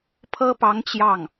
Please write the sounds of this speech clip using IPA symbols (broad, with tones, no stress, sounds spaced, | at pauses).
pʰ ɤ˥ p ɑ˧˥ ŋ t͡ɕ j ɑ˥˩ ŋ